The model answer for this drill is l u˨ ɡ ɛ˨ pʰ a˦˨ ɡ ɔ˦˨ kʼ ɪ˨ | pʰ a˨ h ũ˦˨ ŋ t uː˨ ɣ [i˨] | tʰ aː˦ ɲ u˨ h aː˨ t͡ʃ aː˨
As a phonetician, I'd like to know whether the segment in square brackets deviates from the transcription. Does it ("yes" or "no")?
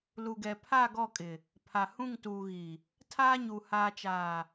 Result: no